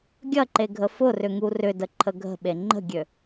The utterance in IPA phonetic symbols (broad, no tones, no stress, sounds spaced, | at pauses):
ɡʲ ɐ ǃ e ɡʱ ə f ʊ r ʏ ŋ u r ʏ d ə ǃʰ ə ɡʱ ə̤ ɓ e ŋ͡ǃ ə̤ ɡʲ ø